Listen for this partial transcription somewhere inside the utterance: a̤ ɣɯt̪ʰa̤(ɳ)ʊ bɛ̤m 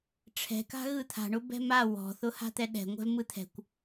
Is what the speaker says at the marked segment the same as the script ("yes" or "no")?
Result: yes